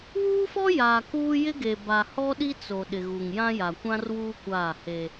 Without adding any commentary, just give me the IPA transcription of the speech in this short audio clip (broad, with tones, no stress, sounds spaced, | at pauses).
w uː˦ f ɔ˦ j aː˨ k uː˦ j ɪ˦ ɡ e˨ b a˨ h ɔ˦ ɗ i˦ t͡s o˨ ɗ ɪ˨ ɣ u˨ ŋ j ã˦ j a˨ kʷ ã˦ r w uː˦ kʷ aː˦˨ h e˦